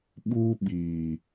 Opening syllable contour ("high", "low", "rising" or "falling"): high